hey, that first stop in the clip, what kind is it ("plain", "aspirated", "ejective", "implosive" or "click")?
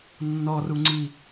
click